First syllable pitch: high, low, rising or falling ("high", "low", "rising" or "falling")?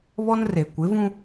high